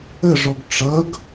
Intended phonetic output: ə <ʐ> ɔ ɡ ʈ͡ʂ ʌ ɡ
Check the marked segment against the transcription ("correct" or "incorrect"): correct